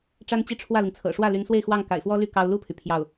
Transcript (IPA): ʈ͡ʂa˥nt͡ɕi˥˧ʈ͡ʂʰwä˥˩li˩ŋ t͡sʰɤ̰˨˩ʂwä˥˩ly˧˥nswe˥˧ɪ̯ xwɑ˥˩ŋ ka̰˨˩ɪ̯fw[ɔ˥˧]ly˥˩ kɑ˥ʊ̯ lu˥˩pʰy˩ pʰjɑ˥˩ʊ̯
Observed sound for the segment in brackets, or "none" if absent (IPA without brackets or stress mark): ɔ˥